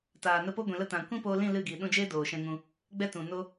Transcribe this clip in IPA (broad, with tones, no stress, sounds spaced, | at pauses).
t aː˨ n ə˧ p o˦ ɡʷ ĩ˨ l ə˧ t ã˨ kʷ ĩ˦ p oː˧ l ĩ˦˨ l ɨ˦˨ ɡ iː˨ ɗ ũ˧ d͡ʒ eː˦ d oː˨ ʃ ɛ̃˧ ŋ ũ˧ | ɡ͡b ɛ˦ t ũ˨ n o˦